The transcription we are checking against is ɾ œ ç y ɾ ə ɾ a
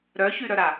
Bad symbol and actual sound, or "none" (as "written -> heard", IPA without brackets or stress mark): ə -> œ